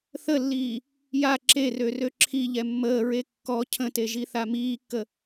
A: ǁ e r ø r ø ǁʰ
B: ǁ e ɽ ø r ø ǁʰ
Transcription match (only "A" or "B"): A